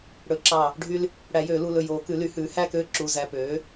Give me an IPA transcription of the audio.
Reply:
ɽ ɵ˩˥ ǁ ɑ˧˩ | ɖʱ y˦ l | ɽ æ˨˩˦ j øː˨˩˦ l u˩˧˩ l ɵ˧˩ j oː˨˩˦ k ʉ˩˥ l y˩˥ h ʉː˩˥ h æ˥˨ k øː˦ ǁ u˩˧˩ z æ˩˧˩ p øː˩˥

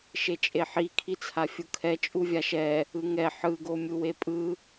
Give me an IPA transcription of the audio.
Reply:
ʃ e t͡ʃʼ e ħ i kʰ i t͡sʰ a fʲ u kʰ ɛ t͡ʃʼ u vʲ a ʃ ɛ | ɯ ŋ ɛ ħ ɯ ɡ o mʲ u w e pʼ ɯ

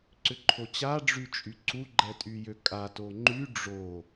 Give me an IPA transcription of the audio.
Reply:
ǀ ʏ ǃʰ o t͡ɕ a ɖ͡ʐ y t͡ʃʼ y ǀ u ɡ͡ǃ ɛ tʼ y j ø kʼ a t o ŋ͡ǃ y ɖ͡ʐ o

